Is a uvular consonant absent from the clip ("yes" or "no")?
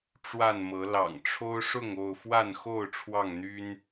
yes